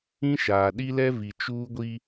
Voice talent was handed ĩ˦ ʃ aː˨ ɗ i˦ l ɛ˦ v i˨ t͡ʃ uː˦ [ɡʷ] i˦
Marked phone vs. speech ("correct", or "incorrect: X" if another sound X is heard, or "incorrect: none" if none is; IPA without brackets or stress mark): correct